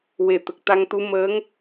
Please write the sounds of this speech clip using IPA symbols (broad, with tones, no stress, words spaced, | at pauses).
we˨˩t̪ə˨˩k̚t̪a˧ŋt̪u˧˥ məː˧˥ŋ